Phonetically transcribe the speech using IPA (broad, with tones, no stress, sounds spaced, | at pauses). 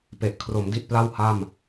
p e˨˩ ʔ kʰ r o˩˦ m d i˥˩ t̚ p l a˥˩ w h a˥˩ m